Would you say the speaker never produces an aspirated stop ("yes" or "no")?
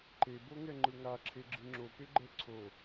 no